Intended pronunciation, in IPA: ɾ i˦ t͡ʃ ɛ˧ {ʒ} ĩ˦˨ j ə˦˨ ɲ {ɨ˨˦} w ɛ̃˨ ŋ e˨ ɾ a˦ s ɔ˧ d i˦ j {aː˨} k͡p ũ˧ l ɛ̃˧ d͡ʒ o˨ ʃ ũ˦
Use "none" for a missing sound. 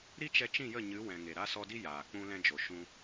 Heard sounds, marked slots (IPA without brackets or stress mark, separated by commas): t͡ʃ, ɨ˨˦, aː˨